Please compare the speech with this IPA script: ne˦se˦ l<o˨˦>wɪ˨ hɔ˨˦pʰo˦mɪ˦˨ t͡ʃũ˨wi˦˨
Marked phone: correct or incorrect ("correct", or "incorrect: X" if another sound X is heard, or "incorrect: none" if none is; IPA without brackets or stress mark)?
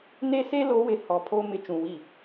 correct